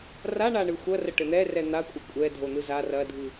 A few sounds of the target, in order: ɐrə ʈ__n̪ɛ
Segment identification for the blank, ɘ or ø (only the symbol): ɘ